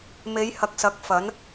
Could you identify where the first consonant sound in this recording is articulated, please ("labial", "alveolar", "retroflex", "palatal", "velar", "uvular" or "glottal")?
labial